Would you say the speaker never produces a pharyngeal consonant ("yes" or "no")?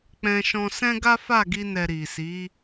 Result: yes